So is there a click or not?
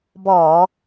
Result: no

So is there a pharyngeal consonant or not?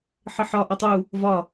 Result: yes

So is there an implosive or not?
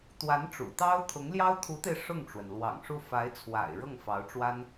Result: no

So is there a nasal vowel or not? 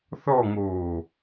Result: no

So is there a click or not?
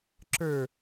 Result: yes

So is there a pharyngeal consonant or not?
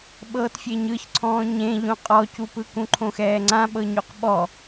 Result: no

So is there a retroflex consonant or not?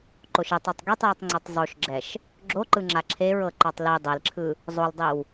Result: no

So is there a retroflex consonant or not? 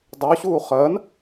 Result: no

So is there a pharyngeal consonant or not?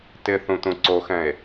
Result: no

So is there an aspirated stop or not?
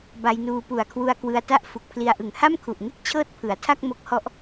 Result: yes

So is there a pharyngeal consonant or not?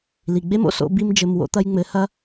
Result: no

